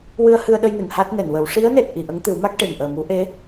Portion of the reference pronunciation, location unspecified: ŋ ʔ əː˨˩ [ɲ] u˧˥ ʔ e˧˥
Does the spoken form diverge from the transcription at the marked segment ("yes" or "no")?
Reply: yes